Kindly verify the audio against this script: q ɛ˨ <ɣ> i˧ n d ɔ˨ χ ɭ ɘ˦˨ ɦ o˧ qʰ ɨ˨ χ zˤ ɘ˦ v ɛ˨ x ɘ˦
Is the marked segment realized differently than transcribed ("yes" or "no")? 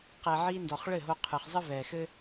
yes